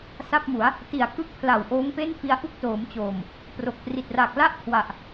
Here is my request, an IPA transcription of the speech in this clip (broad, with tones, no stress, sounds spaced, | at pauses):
s a˥˩ p̚ m u˩˦ a̯ | t i˨˩ a̯ k ɯ˥˩ k̚ pʰ l a˨˩ w ʔ oː˦˥ ŋ p e˥˩ n f i˧ a̯ ʔ u˥˩ k̚ t oː˩˦ m t͡ɕ oː˨˩ m | p r o˨˩ k̚ p r i˨˩ t̚ r a˨˩ k̚ l a˥˩ ʔ kʰ w a˨˩ ʔ